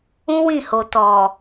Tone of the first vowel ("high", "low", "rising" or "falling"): high